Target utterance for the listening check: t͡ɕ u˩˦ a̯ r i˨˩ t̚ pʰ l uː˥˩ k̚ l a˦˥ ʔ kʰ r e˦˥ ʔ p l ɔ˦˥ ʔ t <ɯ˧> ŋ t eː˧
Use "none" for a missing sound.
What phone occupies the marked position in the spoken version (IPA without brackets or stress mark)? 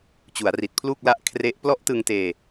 ɯ˧